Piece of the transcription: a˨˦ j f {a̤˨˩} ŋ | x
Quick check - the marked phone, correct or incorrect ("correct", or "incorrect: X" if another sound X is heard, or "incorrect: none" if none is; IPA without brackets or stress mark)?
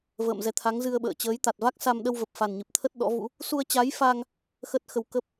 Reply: incorrect: a˧